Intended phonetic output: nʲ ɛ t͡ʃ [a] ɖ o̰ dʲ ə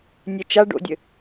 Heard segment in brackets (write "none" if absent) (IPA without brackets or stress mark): a